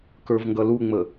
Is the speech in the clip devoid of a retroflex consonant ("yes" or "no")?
yes